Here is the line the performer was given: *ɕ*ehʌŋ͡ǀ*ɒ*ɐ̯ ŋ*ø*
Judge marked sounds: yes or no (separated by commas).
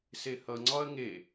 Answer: no, yes, no